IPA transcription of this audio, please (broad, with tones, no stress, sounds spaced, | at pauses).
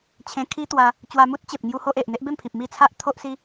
t͡ɕʰ ẽ˧ kʰ i˦ t̪ w a˧ | t͡ɕ w a˧ m u˦ t̚ t͡ɕ e˨ p̚ ŋ j u˦ h o˦ ʔ e˨ ʔ n̪ e˦ ʔ b e˥˧ m pʰ i˨ p̚ m i˥˧ t͡sʰ a˦ ʔ t̪ʰ o˦ ʔ s i˦